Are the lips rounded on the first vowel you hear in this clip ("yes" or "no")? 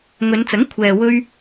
yes